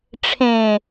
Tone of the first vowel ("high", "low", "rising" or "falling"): low